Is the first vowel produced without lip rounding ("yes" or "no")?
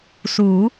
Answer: no